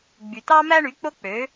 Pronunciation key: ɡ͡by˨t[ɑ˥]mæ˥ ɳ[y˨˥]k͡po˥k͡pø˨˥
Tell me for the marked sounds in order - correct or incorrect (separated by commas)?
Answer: correct, correct